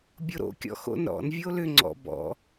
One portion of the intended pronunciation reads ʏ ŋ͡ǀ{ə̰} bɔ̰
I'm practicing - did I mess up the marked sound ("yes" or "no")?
yes